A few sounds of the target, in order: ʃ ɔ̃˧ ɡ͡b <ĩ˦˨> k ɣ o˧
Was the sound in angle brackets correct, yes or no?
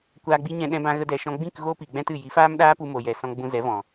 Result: yes